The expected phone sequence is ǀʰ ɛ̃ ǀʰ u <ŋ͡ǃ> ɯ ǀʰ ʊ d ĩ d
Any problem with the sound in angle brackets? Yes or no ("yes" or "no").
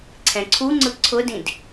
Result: yes